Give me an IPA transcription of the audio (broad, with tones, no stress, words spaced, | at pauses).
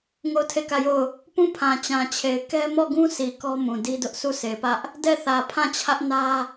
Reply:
ŋo˦˨ʊ̯tʰe˦˨kä˦˨jo˦˨ʊ̯ | pũ˦˨pʰã˨t͡ɕã˨t͡ɕʰe˨ɪ̯ kɛ˦ mɔ˦˨ɡũ˦si˨ kɔ˦mũ˨ di˦dʊ˦ʔ sʰu˦˨se˨pä˦ʔ | dɛ˦˨θä˨ pʰã˦˨t͡ɕʰä˦ʔnä˦